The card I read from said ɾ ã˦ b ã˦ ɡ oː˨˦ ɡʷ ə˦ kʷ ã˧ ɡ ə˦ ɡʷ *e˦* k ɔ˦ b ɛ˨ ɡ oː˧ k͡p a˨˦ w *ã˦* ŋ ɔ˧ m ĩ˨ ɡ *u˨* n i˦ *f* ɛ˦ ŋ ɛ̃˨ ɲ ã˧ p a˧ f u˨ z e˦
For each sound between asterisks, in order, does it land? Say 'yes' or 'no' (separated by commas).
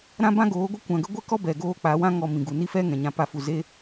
no, yes, yes, yes